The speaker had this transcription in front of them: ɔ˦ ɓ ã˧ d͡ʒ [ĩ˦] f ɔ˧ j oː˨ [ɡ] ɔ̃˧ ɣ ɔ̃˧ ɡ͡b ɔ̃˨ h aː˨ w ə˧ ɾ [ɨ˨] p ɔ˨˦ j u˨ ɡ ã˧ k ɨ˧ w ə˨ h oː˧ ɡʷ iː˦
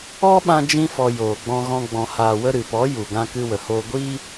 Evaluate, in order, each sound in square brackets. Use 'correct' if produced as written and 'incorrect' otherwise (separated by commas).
correct, incorrect, correct